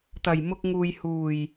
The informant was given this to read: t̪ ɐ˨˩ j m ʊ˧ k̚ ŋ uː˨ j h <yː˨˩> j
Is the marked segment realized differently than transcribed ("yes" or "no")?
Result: yes